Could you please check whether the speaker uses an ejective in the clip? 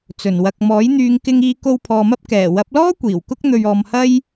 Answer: no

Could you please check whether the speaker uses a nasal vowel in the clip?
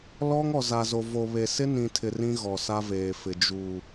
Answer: yes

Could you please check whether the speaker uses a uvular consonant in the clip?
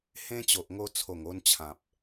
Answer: no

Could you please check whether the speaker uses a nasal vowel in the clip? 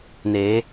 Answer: no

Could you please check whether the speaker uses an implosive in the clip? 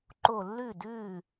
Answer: no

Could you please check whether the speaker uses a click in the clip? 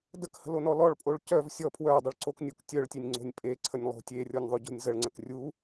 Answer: yes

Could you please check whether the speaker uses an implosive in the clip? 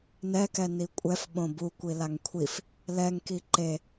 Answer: yes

